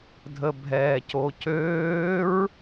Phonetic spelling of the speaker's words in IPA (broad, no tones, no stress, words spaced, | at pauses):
dʱəbʱɛːcocøːɹ